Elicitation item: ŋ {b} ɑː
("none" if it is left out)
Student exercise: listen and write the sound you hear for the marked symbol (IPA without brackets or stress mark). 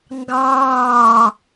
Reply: ɡ